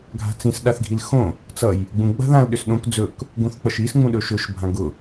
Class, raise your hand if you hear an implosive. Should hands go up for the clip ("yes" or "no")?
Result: yes